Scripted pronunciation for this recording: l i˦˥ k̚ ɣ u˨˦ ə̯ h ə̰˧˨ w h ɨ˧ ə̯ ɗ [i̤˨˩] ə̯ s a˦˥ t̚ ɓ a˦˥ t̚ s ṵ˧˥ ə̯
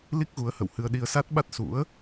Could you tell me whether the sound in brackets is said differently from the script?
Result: yes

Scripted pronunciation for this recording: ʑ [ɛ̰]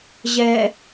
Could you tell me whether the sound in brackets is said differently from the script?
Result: yes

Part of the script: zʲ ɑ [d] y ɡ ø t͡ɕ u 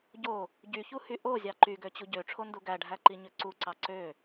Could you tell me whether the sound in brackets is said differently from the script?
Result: yes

